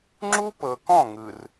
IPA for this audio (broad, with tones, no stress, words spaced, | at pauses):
ŋ͡ǁu˦pɤ˨kɔ̃˦˨ ŋɯ˨r